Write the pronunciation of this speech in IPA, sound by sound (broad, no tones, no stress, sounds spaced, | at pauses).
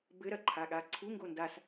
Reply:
b ɘ ɾ ɐ ǃʰ a ɠ a ǀʰ u ŋ ɡ o n d a s